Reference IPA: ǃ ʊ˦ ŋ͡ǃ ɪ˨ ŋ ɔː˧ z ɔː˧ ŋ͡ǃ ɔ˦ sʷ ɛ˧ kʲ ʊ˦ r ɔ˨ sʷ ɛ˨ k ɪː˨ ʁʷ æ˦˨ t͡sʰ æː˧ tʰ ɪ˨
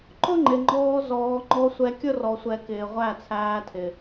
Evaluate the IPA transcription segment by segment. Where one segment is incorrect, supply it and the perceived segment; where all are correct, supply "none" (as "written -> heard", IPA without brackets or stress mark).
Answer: ŋ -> ŋ͡ǃ